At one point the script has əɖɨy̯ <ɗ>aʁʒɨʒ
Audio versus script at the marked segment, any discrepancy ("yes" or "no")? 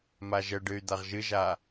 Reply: yes